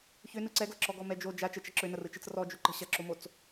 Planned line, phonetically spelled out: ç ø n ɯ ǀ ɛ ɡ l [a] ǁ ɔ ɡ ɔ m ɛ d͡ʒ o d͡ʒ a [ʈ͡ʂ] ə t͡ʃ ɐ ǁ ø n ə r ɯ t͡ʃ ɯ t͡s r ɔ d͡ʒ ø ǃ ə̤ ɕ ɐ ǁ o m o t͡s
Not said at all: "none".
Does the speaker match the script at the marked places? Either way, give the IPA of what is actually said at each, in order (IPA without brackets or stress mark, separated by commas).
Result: ə, t͡ʃ